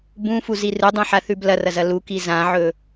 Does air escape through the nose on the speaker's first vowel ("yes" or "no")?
yes